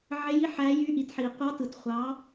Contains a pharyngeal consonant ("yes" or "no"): yes